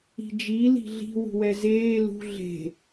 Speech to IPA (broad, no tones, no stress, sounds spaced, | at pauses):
i̤ d͡ʒ i l i̤ ɮ i̤ w ṳ w ɛ z eː l ṳ ɮ e̤